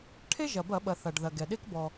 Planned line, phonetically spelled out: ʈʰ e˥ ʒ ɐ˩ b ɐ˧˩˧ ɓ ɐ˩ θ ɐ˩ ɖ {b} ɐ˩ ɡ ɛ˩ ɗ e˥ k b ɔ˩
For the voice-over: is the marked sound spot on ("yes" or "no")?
no